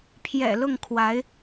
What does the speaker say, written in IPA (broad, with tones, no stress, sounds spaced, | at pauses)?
pʰ j ɛ̰˨˩ l ʊ˥˩ ŋ kʰ w a˧˥ ɪ̯